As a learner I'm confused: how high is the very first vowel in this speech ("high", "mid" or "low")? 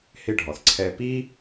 high